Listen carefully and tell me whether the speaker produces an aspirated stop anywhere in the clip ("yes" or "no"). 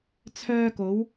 yes